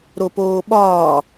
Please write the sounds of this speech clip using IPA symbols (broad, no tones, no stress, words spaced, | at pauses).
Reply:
ɾopoːɓɒː